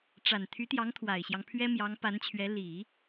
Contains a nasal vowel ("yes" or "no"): no